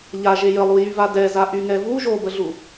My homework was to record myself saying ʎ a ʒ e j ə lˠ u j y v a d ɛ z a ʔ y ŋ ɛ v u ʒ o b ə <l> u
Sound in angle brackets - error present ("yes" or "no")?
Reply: yes